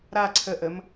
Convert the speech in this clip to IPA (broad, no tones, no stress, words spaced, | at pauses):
ɾa ǀʰəʔəm